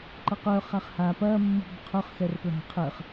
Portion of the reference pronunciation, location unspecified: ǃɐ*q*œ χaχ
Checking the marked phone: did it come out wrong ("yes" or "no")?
no